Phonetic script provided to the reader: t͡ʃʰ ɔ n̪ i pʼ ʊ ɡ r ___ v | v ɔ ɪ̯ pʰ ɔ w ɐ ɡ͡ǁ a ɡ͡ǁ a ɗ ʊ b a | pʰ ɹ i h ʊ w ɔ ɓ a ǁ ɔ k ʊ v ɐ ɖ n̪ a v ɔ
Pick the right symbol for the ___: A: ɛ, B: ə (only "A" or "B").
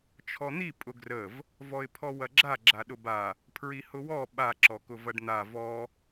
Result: B